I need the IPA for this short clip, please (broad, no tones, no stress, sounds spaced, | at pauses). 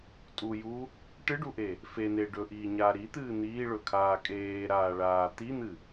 tʼ u j u | ʈ ɨ ɖ u ʔ e | f e n̪ e ɖ ɵ ʔ iː ɲ aː ɾ i t̪ ɨː n̪ iː ɭ ɵ kʰ aː kʼ eː ɾ aː ɭ aː t̪ i n̪ ɨ